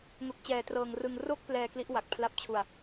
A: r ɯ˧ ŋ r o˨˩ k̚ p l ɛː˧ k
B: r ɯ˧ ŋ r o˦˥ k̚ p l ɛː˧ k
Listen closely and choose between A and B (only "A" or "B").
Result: B